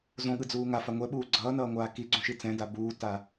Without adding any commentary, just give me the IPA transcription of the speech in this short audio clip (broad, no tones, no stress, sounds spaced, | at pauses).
z õ ɠ ɯ d͡z uː ŋ a f a ŋʷ ɛ ɓ uː ɡ͡ǀ ʌː n ʌː ŋʷ aː k i ɡ͡ǀ ũ ʃ i t͡s ɛ̃ d a b uː t a